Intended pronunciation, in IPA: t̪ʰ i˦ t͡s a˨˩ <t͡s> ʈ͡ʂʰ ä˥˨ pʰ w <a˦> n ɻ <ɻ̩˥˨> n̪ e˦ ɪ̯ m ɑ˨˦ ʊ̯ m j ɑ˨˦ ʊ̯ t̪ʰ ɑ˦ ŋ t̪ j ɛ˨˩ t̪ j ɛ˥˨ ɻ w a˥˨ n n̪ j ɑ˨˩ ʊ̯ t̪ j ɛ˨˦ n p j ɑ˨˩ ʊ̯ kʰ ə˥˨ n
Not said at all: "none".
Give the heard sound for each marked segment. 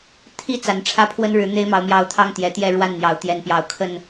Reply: n, ə˦, ɻ̩˨˦

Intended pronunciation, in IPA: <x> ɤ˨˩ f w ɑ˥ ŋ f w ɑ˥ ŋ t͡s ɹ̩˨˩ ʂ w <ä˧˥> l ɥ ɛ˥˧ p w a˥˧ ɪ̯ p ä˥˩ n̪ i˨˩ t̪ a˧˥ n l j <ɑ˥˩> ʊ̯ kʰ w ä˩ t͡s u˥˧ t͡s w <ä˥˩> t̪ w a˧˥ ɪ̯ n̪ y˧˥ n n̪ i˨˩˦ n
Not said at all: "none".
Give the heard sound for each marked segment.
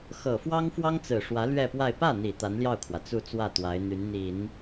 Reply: x, ä˧˥, ɑ˥˩, ä˥˩

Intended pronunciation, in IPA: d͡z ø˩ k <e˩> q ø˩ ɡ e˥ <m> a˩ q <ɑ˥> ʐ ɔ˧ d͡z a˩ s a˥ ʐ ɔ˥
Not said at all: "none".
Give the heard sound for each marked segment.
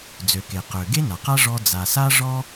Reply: e˩, n, a˥

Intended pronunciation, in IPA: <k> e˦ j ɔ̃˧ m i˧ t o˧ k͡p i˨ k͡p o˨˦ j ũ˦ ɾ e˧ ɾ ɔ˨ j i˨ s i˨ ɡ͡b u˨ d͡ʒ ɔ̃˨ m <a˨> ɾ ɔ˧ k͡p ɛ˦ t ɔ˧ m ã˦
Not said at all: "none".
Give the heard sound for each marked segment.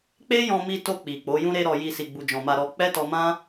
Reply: k͡p, a˧

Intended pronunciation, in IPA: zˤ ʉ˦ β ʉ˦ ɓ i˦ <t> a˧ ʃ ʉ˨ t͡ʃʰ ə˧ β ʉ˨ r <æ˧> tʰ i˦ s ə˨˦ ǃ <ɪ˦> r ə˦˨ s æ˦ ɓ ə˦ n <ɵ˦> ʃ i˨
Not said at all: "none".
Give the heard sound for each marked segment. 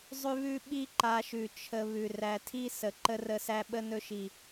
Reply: ǃ, æ˧, ə˦, ɵ˦

